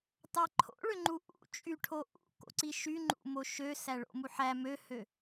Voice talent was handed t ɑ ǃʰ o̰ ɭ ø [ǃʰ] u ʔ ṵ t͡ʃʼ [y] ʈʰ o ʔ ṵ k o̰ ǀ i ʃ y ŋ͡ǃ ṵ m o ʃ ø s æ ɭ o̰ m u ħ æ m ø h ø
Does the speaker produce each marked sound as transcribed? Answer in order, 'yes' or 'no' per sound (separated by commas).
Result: no, yes